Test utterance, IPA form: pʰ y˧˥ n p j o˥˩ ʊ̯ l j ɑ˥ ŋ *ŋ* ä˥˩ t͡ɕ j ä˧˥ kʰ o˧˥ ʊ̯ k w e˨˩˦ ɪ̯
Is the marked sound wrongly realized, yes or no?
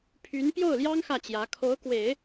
yes